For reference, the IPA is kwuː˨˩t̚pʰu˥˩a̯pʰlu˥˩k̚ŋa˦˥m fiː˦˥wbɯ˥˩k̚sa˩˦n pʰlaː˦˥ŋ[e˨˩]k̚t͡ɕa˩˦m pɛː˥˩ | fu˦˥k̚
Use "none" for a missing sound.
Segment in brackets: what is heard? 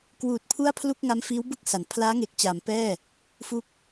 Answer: e˨˩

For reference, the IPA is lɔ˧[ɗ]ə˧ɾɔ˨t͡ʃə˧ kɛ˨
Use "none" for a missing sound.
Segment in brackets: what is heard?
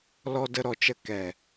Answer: d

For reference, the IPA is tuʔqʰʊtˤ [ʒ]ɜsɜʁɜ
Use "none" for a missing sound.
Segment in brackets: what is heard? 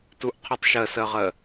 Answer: ʃ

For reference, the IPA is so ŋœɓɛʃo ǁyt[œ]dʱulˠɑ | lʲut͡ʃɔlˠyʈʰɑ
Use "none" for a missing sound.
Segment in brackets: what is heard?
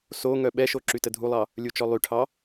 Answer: ə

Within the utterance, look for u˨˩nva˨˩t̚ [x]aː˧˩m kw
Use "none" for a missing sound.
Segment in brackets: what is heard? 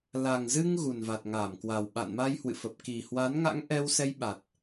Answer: ŋ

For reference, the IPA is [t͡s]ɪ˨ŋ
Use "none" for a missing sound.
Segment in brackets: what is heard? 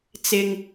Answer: t͡s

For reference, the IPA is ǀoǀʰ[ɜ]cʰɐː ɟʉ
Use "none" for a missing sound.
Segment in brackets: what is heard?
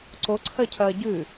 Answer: ɜ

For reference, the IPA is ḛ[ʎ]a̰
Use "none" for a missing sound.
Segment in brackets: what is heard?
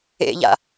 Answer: ʎ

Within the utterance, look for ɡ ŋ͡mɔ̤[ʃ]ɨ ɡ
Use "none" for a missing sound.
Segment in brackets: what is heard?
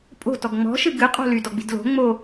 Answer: ʃ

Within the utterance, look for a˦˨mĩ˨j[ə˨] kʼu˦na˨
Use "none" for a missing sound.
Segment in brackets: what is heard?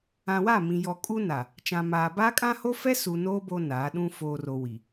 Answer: ɔ˨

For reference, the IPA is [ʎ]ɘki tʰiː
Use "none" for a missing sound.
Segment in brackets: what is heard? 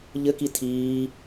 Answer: ʎ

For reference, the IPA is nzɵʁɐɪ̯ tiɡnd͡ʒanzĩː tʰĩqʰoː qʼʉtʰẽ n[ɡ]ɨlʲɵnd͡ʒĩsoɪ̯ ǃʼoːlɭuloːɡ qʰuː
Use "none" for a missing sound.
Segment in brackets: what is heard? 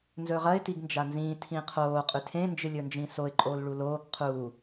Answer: d͡ʒ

